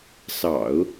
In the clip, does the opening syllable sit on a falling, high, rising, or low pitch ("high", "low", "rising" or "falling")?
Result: low